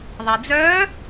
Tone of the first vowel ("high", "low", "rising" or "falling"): low